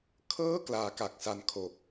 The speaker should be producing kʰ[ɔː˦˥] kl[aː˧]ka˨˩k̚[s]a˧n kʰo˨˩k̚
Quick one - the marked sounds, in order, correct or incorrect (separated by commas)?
incorrect, correct, correct